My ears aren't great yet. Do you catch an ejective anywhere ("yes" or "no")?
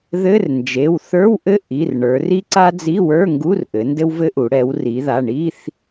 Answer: no